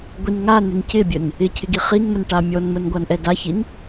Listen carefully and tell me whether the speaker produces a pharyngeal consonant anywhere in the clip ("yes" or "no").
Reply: no